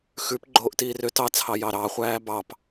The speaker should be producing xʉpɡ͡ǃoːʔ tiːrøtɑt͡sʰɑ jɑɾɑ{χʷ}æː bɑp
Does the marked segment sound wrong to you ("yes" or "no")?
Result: no